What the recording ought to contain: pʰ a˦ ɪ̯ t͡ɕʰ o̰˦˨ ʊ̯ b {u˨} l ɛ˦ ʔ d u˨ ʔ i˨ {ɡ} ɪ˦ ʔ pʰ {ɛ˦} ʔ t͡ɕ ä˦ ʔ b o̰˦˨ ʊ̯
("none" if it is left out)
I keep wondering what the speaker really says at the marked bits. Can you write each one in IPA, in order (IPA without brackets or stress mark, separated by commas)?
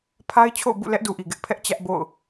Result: ṵ˦˨, ɡ, ɛ˦